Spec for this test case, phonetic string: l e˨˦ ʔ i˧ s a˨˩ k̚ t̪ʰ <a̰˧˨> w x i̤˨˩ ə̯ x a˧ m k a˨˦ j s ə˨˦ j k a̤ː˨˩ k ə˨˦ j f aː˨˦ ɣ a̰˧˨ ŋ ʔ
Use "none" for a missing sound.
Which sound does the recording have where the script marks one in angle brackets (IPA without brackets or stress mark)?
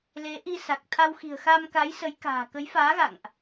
a˧